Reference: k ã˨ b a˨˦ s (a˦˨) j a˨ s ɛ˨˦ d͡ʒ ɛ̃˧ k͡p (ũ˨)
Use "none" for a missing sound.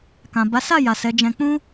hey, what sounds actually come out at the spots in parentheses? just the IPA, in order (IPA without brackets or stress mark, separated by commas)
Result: a˦˨, ũ˦